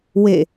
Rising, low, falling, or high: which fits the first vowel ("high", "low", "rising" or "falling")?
falling